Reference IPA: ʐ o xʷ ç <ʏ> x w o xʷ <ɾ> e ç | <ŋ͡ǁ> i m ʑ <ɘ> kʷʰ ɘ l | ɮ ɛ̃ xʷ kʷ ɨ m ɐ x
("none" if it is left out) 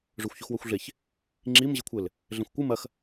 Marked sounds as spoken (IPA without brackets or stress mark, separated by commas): u, ɮ, ŋ͡ǁ, ɘ